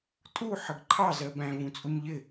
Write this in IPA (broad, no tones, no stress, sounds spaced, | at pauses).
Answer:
tʼ u ħ ə ɡ ǃʰ ɑ z ɜ b æ̃ v ũ t͡sʼ u ɲ ʎ ɪ